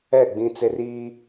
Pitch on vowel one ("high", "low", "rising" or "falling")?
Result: falling